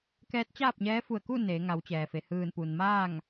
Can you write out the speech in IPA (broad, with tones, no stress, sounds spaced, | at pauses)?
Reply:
k ɛː˧˥ t̚ t͡ɕ aː˥˨ p̚ ɲ ɛː˧˥ f u˧˩ ə̯ k u˥˨ n eː˩˧ ŋ a˩˧ w t͡ɕ ɛː˩ f e˩ h ɯː˧˩ n p u˩ n m aː˥˨ ŋ